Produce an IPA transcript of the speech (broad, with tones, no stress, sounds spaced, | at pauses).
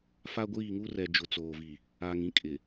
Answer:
f a˦ ɡʷ iː˦˨ ŋ u˦ r ɛ˨ d͡ʒ ʊ˨ t͡s oː˨ v i˨ | aː˨ ŋ ĩ˦ kʼ ɪ˨